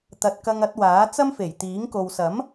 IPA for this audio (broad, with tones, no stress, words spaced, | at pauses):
t̪ɐ˧t̚ kɐ˧ŋɐ˨˥t̚waː˨˥ t͡sɐ˥mfe˨˩jt̪iː˨˥ŋko˨w sɐ˨˥m